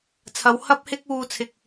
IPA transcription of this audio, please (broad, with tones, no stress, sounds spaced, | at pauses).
t͡sʰ ɐ˨˧ w h ɐ˥ p̚ h ɪ˥ k̚ uː˧ t͡sʰ ɪ˨ k̚